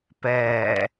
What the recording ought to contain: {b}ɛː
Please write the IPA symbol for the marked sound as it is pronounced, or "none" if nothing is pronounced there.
p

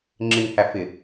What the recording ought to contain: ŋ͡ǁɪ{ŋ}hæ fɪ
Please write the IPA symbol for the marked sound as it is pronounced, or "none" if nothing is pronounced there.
ŋ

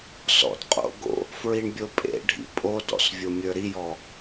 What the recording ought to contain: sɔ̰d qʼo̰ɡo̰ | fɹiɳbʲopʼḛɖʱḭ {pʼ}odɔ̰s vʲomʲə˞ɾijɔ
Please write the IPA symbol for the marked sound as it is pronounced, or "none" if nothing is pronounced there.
pʼ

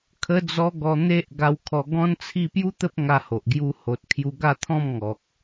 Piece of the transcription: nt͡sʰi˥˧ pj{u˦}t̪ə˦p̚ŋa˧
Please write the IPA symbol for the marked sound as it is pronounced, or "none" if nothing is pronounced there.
u˦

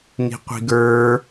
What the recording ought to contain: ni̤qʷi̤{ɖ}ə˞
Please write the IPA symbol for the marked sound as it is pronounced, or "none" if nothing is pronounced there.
ɡ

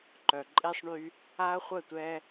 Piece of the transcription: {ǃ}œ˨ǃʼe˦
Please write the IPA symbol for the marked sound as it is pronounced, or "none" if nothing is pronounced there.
ǃ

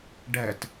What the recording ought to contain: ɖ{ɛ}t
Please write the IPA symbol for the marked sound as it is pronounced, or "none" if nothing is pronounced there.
ɛ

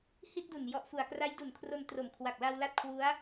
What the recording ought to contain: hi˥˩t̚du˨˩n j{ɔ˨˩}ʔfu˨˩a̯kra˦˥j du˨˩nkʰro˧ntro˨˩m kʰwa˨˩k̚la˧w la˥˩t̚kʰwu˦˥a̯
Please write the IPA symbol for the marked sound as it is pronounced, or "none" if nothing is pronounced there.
ɔ˨˩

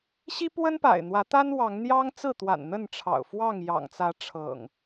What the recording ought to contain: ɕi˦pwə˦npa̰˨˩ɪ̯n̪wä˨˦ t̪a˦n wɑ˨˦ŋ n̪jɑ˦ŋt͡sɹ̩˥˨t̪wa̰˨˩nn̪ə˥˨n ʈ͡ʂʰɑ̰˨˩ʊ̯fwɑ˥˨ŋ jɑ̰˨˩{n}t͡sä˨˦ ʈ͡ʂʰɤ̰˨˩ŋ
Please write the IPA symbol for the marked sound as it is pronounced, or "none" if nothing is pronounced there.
ŋ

